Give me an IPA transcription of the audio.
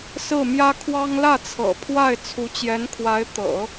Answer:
s ɹ̩˥˩ m j ä˥ kʰ w ɑ˥ ŋ l ä˥˩ t͡sʰ ɤ̰˨˩ pʰ w a˥˩ ɪ̯ t͡sʰ u˧˥ t͡ɕ j ɛ˧˥ n kʰ w a˧˥ ɪ̯ t̪ ɤ̰˨˩˦

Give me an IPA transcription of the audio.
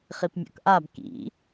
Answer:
χ i p mʲ ɔ̰ k ʔ a b k ḭ

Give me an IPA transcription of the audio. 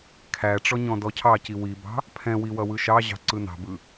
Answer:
kʰ æ ʈ͡ʂ ɔ ɲ ɔ̃ d ɔ cʰ ɑ c i w i b ɑ̤ | pʰ ɛ̃ w i w ʌ w ɯ ʃ ɑ ʑ ɑ̤ ǀ ɯ n ɑ̤ b ɯ

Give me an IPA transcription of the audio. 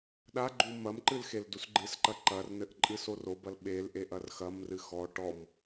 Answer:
ɗ a ɡ͡ǃ u m ɐ m ǃ ɨ l x e l d u s ɡ͡ǃ ɨ s ǃ ɐ ǃ ɐ r n ɘ ʔ ǃʼ ɨ s o r o b ɐ l ɓ e l ʔ e ʔ ɐ r x ɐ m r ɨ x ɔ ʈ ɔ m

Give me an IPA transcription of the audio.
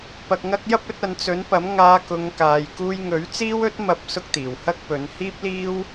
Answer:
p ɐ˧ k̚ ŋ ɐ˥ k̚ j ɐ˥ p̚ ɵ˨˥ t̚ ɐ˨˧ n t͡s ɵ˨˥ n p ɐ˨˥ m ŋ aː˧ k ʊ˨˧ ŋ k aː˨ j k uː˧ j ŋ ɵ˨˥ ɥ t͡s iː˥ w ɵ˥ t̚ m ɐ˧ p̚ s ʊ˧ k̚ t̪ iː˨˩ w h ɐ˥ k̚ p ɵ˨˧ n h iː˥ p̚ l iː˥ w

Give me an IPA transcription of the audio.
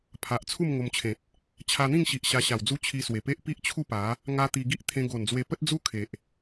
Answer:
pʰ a˨ ʔ t͡sʰ u˥˧ m ŋ o˧ m t͡ɕʰ ẽ˨ t̚ | t͡ɕʰ a˧ n̪ ĩ˥˧ ŋ ɕ i˨ ʔ ɕ a˧ ɕ a˨˩ w d͡z u˦ t͡ɕʰ i˧ s w e˨˩ p e˦ ʔ p i˦ ʔ t͡ɕʰ u˥˧ p a˨˦ | ŋ a˦ t̪ i˧ ɡ i˦ ʔ t̪ʰ ẽ˧ ɡ o˨˩ n d͡z w e˧ p ə˦ t̚ d͡z u˦ kʰ e˨ ʔ

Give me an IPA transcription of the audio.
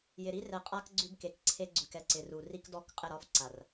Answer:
j ɪ˨ ɾ i˦ r ɛ˨ qʼ a˦ k ɡ͡ǀ ʉ˦ b k e˨ k ǀʰ e˦ ɡ͡ǀ ʉ˨ k ɛ˦ ǀ ɪ˨ r u˨ r i˦ k d ɔ˦˨ k qʼ ɪ˦˨ ɾ ɒ˦ f ǀ a˨ r

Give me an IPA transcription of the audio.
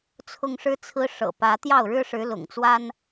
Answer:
t͡sʰ ʊ˦ ŋ ʂ ɻ̩˦ t͡sʰ ɹ̩˦ ʂ ɤ̰˨˩ p ä˨˦ t̪ j ɑ˥˨ ʊ̯ ɻ ɻ̩˦ ʂ ɻ̩˨˦ l ʊ̰˨˩ ŋ t͡s w a˦ n

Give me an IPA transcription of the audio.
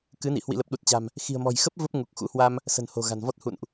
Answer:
k ɨ˨˦ n ḭ˧˨ h w ḭ˧˨ l ə˨˩ p̚ ɗ u˨˩ t̚ t͡ɕ a̤˨˩ m | x i̤˨˩ ə̯ m ɔ̤˨˩ j x ə˦˥ p̚ v ə˦˥ p̚ ŋ u˨˩ k̚ x ṵ˧˥ h w a˧ m | s ə̤˨˩ n h o̤˨˩ ɣ a̤˨˩ n v ɔ˦˥ t̚ h ṵ˧˨ n ʔ

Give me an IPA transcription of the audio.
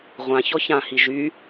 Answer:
ʁʷ ã ç ɔ ç ã h i ʒ y

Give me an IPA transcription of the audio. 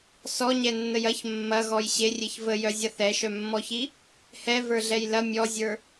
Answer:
s ɔ ɲ ɛ nː ə j ɐ ç mː ɐ ɣ ɔ j ɕ e rʲ e ç v ə j œ zʲ ɐ θ ɛ ʃ œ mː ɔ ç i | h ɛ v ə˞ ɮ ɛ j l ɐ mʲ ɔ zʲ ə˞

